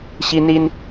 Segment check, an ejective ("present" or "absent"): absent